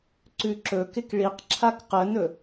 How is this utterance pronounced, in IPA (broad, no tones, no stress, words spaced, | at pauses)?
ǀʉǁɵkɪk ɭiqǁʰak qənɵ